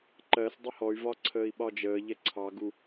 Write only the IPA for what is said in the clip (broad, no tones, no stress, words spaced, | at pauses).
ǃɜsdˤə hɔy̯vɒ ǀʰəːi̯ɓɒd͡ʒəːʎɛ ǀʰɑɡu